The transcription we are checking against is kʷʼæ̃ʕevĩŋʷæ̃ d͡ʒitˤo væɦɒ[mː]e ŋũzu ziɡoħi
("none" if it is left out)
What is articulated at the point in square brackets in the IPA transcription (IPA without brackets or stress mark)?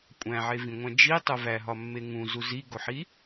mː